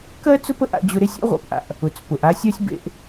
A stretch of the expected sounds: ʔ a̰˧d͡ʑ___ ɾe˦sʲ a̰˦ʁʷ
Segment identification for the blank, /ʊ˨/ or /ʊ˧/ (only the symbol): ʊ˧